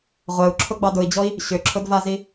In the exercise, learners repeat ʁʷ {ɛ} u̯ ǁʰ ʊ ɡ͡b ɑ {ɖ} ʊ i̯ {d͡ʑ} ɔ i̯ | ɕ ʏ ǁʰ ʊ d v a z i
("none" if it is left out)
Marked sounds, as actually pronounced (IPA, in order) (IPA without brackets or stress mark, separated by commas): ɛ, d, d͡ʑ